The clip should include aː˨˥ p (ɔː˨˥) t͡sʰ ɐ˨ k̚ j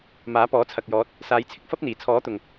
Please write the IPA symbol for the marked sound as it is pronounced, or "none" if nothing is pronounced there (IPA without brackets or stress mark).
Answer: ɔː˨˥